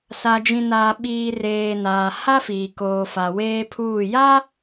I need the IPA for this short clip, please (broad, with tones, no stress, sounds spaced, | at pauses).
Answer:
s a˨ d͡ʒ ĩ˨ n aː˨ ɓ iː˨ r eː˨ n aː˨ h a˦ f iː˨ k oː˨ f a˨ w eː˦ pʰ uː˦˨ j a˦